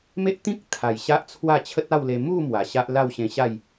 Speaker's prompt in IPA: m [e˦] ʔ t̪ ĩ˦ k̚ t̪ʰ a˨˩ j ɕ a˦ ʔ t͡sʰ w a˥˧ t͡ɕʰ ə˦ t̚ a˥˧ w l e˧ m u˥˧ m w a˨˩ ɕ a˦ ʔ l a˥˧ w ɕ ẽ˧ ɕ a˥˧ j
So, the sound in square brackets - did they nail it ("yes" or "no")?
yes